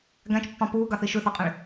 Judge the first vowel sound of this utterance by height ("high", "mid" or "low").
low